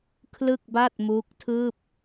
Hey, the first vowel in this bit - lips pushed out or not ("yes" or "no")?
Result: no